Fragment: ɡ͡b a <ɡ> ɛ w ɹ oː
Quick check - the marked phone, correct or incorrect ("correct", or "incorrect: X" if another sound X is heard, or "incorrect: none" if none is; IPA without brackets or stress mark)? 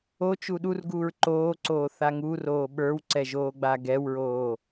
correct